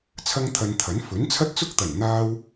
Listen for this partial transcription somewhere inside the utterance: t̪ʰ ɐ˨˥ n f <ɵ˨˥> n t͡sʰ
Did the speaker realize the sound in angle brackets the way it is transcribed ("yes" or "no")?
yes